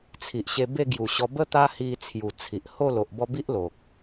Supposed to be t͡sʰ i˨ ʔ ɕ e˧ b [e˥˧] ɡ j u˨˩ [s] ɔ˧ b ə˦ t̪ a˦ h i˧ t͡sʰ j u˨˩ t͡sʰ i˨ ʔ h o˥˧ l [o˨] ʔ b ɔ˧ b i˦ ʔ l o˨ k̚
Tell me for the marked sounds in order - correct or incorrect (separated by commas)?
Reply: correct, incorrect, correct